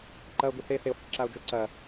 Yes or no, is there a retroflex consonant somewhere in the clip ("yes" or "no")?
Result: yes